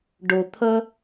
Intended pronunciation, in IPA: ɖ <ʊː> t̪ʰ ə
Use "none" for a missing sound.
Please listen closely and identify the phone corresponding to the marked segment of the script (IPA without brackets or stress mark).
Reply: ʊ